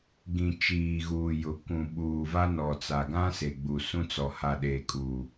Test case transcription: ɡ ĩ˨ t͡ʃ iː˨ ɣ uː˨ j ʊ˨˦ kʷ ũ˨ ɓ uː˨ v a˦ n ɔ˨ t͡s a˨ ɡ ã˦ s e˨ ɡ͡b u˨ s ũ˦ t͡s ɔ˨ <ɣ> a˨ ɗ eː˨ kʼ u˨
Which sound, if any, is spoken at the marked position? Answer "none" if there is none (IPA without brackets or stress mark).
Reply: h